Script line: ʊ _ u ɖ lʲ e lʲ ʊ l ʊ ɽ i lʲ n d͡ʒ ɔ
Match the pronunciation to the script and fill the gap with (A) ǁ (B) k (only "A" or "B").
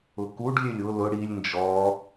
B